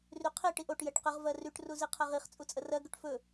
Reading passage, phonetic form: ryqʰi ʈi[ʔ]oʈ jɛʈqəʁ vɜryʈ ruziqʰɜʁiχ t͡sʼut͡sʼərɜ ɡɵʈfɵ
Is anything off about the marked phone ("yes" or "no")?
no